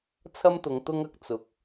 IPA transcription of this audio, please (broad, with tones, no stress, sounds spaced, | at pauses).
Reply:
t͡sʰ ɐ˥ m t̪ ʊ˨˧ ŋ t̪ ʊ˥ ŋ ɐ˨ k̚ t͡s ʊ˨ k̚